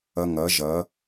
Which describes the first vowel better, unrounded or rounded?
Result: unrounded